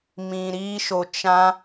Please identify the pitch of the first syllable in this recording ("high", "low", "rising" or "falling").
low